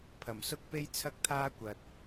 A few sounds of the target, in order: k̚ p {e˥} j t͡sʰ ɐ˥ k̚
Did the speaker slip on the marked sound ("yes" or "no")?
no